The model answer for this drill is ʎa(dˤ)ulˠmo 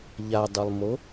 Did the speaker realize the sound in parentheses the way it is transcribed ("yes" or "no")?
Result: yes